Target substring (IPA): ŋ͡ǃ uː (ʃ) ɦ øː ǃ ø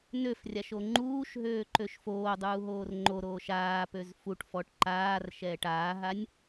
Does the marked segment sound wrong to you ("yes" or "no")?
no